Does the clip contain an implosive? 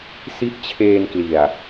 no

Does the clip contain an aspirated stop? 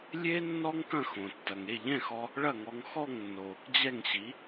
no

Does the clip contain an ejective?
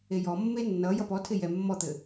no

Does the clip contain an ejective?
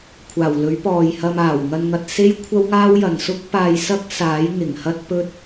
no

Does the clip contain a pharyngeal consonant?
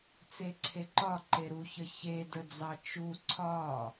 no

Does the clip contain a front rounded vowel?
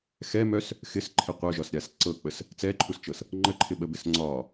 yes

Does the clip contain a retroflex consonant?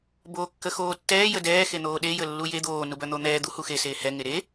no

